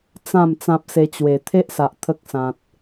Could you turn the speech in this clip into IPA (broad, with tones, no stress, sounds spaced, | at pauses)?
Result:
t͡s ã˥˧ m t͡s ã˦ p̚ s e˧ t͡ɕ w e˨˩ t̪ʰ e˦ ʔ s a˨ ʔ t̪ʰ ə˦ k̚ s ã˨ t̚